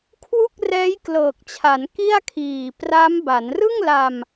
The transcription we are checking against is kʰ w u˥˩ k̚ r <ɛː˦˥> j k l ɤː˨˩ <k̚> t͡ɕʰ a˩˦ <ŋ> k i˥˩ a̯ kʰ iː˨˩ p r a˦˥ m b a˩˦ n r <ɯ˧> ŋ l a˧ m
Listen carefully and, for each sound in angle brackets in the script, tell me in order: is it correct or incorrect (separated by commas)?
correct, correct, incorrect, incorrect